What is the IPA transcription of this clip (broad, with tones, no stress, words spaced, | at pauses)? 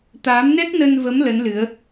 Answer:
t̪aː˨˦mnɛ˦˥k̚nə˧nvə˨˦m lə˨˦nlɨ˨˦ə̯